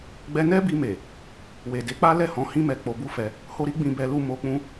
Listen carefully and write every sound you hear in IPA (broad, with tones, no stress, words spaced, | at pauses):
ɡ͡bɛ˧nɛ˦bi˧me˨ | we˨de˨˦k͡pa˦ lɛ˦˨hɔ̃˨˦hĩ˦mɛ˧ k͡po˧bu˦fɛ˧ | ho˧ɾi˦ ɡ͡bĩ˧bɛ˧lu˧ mo˧k͡pũ˦